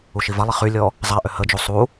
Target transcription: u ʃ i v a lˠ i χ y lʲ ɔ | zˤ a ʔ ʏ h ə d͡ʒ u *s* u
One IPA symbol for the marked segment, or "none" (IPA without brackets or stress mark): sˤ